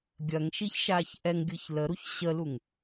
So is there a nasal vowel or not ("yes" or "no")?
no